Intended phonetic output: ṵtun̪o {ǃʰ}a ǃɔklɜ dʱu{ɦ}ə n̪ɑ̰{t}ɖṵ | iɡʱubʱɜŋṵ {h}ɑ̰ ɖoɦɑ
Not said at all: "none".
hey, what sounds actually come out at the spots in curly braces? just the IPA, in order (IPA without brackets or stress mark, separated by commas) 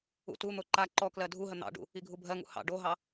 ǃ, ɦ, none, h